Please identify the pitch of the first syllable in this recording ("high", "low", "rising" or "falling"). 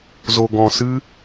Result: low